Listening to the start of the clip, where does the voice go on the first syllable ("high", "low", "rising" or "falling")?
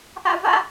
high